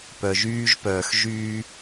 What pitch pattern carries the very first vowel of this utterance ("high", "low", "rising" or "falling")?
low